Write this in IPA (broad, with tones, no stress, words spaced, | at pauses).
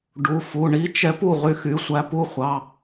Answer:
ɖu˩˧˩fu˩˧˩ ɳi˧˥t͡ʃɛ˧˥p u˩˧˩ʁy˧˥xy˩˧˩sʷæ˧˥ pu˧˥χʷɑ˩˧˩